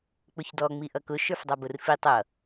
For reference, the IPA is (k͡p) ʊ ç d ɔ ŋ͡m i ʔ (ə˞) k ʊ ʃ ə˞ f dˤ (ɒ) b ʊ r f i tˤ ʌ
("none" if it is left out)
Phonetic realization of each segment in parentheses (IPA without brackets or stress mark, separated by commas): k͡p, ʌ, ɑ